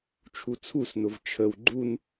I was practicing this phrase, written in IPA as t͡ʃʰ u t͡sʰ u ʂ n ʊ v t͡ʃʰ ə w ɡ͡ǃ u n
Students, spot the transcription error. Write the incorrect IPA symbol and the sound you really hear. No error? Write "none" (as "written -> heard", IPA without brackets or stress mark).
ʂ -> s